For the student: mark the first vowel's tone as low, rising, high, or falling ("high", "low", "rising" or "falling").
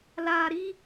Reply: low